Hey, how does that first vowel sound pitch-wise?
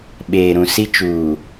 low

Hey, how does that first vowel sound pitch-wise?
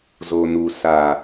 low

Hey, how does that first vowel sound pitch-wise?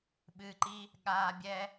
low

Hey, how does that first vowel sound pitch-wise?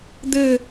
falling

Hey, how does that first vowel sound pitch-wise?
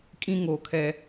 high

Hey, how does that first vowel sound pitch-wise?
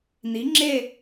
rising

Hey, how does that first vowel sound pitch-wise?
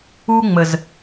high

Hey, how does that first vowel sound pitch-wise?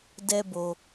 high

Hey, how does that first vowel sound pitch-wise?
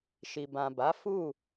low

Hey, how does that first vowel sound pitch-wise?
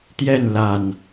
falling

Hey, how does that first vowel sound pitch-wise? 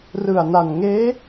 low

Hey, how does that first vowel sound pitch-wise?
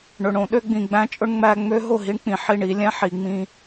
low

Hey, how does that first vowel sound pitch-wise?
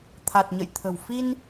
low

